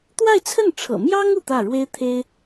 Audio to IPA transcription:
t̪wa˥˧ɪ̯t͡sʰə˥˩nʈ͡ʂʰɤ̰˨˩ mjɑ˥ŋ u˥˧t̪ä˥˩ ɻwe˥ɪ̯t̪ʰe˥ɪ̯

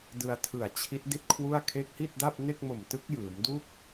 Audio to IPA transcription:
dɯ˧a̯tʰɯ˨˩a̯t͡ɕʰi˦˥t̚ di˥˩t̚kʰwu˥˩a̯ kʰe˦˥k̚hi˥˩t̚da˥˩p̚ ne˥˩k̚mo˨˩mtɯ˦˥k̚ jɯː˩˦mdu˥˩k̚

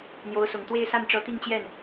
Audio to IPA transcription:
n̪jo˧˥ʊ̯sʊ˨˩ŋ t̪we˥˧ɪ̯sa˥˩nʈ͡ʂɤ˧˥ t̪i˥˧ŋt͡ɕjɛ˥˩n

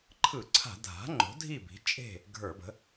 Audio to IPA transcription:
ǃʰɯ˧˩˧ǀʰa̤˧˩˧ dʱa̤˩˥ŋ͡ǃo̤˩˥ dʱi˥˨bi̤˩˥t͡ʃʼe̤˥˨ | ɡʱə˞˧˩˧bə̤˩˥

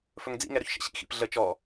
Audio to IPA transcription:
fɵŋd͡zḭŋɛɾɵç ʃə̰ɕḭ xḭpɮə t͡ʃɔ

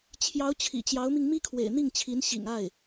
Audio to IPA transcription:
t͡ɕʰjɑ˧˥ʊ̯ t͡ɕʰḭ˨˩t͡ɕjɑ˧˥ʊ̯mi˧ŋ mi˥kʰwḛ˨˩ɪ̯n̪i˥˩ŋt͡ɕʰi˧˥n ɕḭ˨˩ŋa˥˩ɪ̯

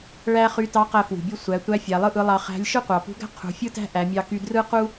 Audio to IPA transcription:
ɭæ˥ χy˧˥tɑ˧˥ qæ˧fwṳ˩bʲu˧ sʷæ˩˧tʷæ˧˥ fʲæ˩˧lˠɯ˥ʔɯ˧˥lˠɑ˧ χæ̤˧˥lʲ ʃɯ˥qʷɑ˩pṳ˧˥ɡæ̤˥ qʰṳ˩˧fʲɯ˥tæ̤˥ ʔæ˩˧mʲɑ˧ky˧ drɯ˥qu˥

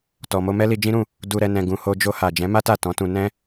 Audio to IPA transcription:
tɔ˨mo˧ mɛ˦li˧d͡ʒĩ˦ɾũ˦˨ | du˧ɾɛ˧ nɛ̃˨ɡũ˨ ho˧d͡ʒo˧ha˨ d͡ʒɛ̃˨˦ma˦ta˦˨ tɔ̃˨˦tũ˧ nɛ̃˦

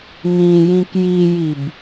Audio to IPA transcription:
ŋĩ jĩkjijib

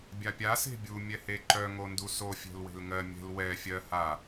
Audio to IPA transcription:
bʲapʲa se̤bʲu mʲɛheǃœ ŋonduso fʲɛ̤lwe̤lŋɜ mʲɛ̤l wɛ fʲɜ ha

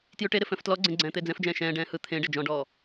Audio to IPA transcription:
tjʉʈeɾɪ fɛ̃ftlɔɡ͡ǀẽ ɡ͡ǀɛ̃ːt̪ɪːd͡zɛ̃fd͡ʒɛ̃ː ʃɛ̃ːɖɛ̃ː hɯ t̪ʰẽ ɖed͡ʒɔ̃ɖɔː

